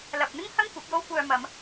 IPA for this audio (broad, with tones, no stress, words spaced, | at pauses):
lɐ˨p̚n̪ɪ˥ŋhɐ˥ŋ kʷɐ˨˥p̚jo˥wkʷœː˧ mɐ˨˧m